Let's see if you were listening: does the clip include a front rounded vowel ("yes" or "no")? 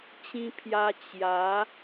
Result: no